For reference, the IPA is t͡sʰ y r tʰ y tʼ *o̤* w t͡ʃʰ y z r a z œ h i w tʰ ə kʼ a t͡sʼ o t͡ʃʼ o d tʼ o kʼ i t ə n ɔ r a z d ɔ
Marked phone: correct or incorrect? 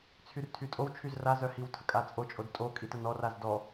incorrect